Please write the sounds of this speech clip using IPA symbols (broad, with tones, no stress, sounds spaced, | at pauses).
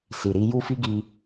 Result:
s i˨ ɾ i˨˦ j u˦ f i˦ ɡ i˧